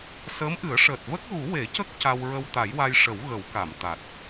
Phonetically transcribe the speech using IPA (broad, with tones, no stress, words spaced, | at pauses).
səː˧˥mʔɨ˨˩˦ə̯ʂəː˨˩t̚ və˦˥k̚ɣu˨˩˦ we˨˩˦cə˦˥k̚ ca˧wɹə˧w t̪a˨˩˦jwa˧j ʂə˨˩˦w ɣə˨˩˦wka˨˩˨m t̪a˨˩t̚